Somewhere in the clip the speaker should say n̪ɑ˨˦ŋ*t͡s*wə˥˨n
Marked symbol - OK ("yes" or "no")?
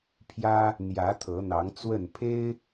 yes